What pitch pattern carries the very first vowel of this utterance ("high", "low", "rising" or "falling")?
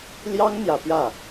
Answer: high